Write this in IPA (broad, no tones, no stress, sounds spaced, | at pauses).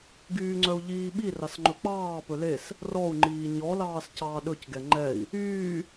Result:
ɡ yː ŋ͡ǀ œ u̯ ʎ iː ɓ i r ɑ s ŋ͡ǃ ɵ k͡p ɑː p ɵ l e s | r ɔ u̯ ŋ͡ǃ iː ɲ ɔ l ɑː s c ɑː ɗ ɵ c ɡ ɛ ŋ͡ǃ ɛ i̯ | yː